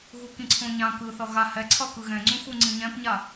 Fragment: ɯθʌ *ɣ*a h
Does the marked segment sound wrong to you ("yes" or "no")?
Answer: no